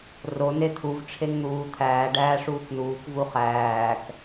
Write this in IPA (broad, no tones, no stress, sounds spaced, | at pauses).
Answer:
r o n e t̪ʰ u v ʈ͡ʂʰ e ŋ n̪ uː t̪ʰ æː ɖ æː ʂ uː k n uː k v u χ æː k